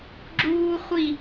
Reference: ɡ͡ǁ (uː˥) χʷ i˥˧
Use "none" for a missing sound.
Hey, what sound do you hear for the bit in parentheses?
uː˥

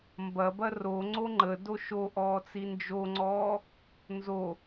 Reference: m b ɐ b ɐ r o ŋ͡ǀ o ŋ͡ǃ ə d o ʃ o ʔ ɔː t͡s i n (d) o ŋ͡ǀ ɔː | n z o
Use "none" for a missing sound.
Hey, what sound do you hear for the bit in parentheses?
d͡ʒ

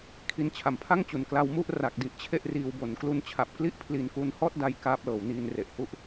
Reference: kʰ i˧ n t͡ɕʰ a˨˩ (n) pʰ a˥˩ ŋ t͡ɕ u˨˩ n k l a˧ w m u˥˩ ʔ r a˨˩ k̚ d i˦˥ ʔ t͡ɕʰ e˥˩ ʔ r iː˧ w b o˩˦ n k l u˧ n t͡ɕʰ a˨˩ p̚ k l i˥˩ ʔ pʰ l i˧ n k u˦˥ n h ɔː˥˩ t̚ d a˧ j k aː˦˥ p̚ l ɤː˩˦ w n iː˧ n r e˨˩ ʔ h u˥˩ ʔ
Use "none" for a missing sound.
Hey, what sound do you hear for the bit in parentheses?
m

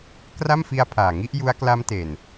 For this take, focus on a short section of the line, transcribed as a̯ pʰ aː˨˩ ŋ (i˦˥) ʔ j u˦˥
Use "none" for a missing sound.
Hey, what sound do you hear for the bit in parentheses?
i˦˥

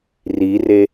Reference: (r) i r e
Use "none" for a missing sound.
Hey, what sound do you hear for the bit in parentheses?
r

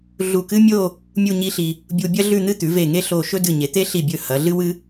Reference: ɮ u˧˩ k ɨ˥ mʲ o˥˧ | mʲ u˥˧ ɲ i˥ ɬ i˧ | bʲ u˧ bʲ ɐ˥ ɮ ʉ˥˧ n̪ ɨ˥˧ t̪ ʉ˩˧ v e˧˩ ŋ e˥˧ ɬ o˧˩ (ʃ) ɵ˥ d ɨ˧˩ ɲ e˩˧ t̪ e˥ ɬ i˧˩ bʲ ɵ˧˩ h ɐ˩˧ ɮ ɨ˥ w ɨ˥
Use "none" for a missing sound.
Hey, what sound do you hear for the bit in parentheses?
ʃ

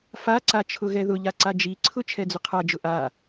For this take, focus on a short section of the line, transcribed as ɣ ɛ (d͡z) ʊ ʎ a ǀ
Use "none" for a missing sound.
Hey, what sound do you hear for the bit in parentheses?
ð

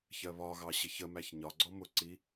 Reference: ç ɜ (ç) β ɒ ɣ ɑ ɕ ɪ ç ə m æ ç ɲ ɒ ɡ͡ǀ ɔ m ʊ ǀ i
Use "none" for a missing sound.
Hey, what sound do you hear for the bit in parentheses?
none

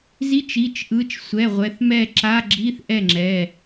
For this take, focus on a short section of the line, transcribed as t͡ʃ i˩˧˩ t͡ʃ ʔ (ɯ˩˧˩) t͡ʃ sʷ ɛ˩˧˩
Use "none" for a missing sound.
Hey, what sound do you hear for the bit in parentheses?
ɯ˩˧˩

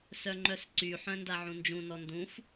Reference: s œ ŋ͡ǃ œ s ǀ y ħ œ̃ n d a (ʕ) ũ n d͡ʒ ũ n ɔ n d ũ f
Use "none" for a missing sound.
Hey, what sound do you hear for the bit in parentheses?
ʕ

